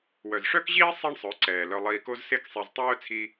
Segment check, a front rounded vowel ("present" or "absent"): present